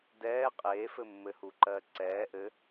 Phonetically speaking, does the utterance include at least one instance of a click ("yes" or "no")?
yes